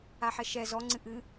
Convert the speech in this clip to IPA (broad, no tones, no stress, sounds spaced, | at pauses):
a ħ ɛ ʃ ɛ z ɔ ŋ͡ǀ ɨ ʔ ɨ